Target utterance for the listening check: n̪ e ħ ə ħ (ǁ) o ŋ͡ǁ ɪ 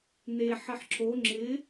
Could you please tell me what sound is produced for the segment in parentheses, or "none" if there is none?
ǁ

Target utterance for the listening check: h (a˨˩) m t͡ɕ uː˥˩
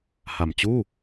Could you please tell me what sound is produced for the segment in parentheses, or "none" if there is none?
a˨˩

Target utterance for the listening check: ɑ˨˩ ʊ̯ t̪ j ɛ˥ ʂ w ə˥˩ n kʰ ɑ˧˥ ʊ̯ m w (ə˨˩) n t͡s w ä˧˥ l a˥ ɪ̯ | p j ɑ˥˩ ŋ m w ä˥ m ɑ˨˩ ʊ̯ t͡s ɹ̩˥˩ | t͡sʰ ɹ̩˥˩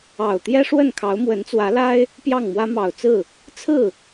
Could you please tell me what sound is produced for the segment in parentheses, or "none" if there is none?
ə˧˥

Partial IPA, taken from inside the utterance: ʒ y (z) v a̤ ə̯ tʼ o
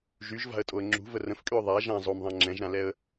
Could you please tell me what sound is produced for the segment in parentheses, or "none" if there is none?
ʒ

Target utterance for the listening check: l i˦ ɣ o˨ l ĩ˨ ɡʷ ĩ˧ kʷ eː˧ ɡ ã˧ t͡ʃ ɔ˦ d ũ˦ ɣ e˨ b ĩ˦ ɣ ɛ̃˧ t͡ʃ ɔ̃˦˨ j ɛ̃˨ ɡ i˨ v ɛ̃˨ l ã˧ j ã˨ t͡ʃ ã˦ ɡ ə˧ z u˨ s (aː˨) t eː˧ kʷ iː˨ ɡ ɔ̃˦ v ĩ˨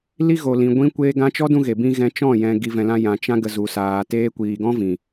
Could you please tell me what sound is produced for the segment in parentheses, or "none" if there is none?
aː˨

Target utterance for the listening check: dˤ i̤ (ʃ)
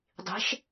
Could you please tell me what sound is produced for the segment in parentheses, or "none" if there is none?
ʃ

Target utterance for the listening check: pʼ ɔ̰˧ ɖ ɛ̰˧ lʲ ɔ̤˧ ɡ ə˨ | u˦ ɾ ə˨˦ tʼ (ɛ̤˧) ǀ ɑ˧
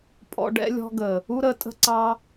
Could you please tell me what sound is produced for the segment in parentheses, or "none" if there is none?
ə̤˧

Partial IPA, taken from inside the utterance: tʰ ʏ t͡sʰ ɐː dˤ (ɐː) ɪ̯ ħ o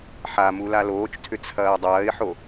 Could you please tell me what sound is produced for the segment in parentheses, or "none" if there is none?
ɐː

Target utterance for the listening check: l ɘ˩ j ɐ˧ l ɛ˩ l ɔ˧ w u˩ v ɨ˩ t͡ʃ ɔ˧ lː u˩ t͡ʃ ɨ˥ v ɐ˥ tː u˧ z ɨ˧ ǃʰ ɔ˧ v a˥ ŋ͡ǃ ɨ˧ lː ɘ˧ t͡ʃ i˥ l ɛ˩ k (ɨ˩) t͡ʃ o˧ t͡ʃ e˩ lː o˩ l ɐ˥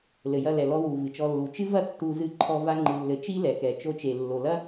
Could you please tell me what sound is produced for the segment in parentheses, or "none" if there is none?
ɛ˩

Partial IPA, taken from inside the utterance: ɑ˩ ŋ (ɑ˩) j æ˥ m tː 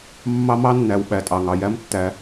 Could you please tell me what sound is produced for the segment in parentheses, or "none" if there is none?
ɑ˩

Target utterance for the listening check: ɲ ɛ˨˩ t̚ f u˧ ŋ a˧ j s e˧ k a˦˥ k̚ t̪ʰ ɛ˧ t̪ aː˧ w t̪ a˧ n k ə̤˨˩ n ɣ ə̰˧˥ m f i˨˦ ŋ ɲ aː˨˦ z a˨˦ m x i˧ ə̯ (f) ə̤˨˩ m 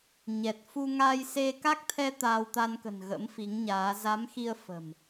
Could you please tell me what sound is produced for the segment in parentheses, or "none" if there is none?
f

